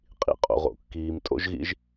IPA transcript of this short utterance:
qʼ ḭ˨ qʼ o̰˨ ʁ o̰˨ kː iː˨ m tʼ o̰˧ ʒ ɣ ḭ˧ ʒ

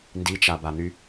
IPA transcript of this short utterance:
n d i t͡ʃ a b a n̪ y

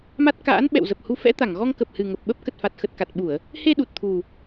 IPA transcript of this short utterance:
m a˦˥ t̚ k a̰ː˧˥ n ɓ ɛ̰˧˨ w z ə˨˩ p̚ h u˨˦ f ɛ̰˧˥ t̪ a˧˩ ŋ ɣ ɔ˧ ŋ k ə˨˩ p̚ h ɨ˨˩ ŋ ə˨˩ p̚ ɓ ə˦˥ p̚ k ə˨˩ t̚ f a˨˩ t̚ x ə˨˩ t̚ k a˨˩ t̚ ɓ u˧˩˨ ə̯ | h e˧ ɗ u˨˩ t̚ t̪ʰ u˨˩

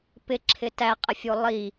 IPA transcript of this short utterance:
p ɪ ǁʰ ɪ t æ qʼ ə fʲ u lˠ i

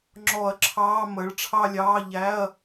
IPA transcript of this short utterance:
ŋ͡ǁ ɔ˧˩˧ ɐ̯ ǁʰ ɑː˧˥˧ m ə˩˧˩ ɭ ʈ͡ʂʰ ɑ˥˧ lʲ ɑː˧˥˧ ʎ æ˧˥˧ ɐ̯

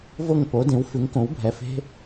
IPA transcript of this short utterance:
v o˥˩ ŋ p o˩˥ d ẽ˩˥ w f ʉ˩˥ ŋ k õ˩˥ w bʱ ɛ˩ f e̤˥

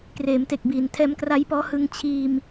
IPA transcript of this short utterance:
k r eː˩˦ m t e˨˩ k̚ b iː˩˦ n tʰ ɛː˦˥ m k r a˦˥ j p ɔː˦˥ h ɯ˧ ŋ t͡ɕʰ iː˧ m

